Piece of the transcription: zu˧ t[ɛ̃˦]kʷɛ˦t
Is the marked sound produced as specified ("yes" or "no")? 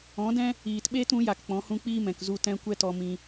yes